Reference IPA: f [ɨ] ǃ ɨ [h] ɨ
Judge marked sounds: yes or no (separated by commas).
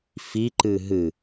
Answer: no, no